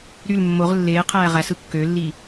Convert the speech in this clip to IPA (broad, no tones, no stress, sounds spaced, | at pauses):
ɾ y l mː o ʁ lː eː qʰ æː ʁ æ s ɯ kː ø lː i